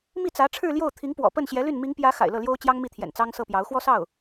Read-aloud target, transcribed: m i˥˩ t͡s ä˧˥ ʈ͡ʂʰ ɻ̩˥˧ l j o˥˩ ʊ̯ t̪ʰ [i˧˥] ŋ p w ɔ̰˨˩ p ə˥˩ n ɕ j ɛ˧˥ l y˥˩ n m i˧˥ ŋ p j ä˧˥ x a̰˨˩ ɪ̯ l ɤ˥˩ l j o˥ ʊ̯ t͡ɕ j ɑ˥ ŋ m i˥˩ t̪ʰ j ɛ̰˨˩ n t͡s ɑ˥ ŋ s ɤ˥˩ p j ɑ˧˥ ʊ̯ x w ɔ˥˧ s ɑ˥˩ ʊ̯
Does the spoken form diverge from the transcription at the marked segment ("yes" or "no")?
no